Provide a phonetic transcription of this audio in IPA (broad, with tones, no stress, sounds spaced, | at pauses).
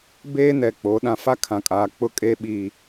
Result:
b eː˦ n ɛ˨ k͡p o˨˦ ɗ ã˨ f a˦ kʰ ã˨ kʼ aː˨ k͡p ʊ˦ kʼ e˦ ɓ iː˦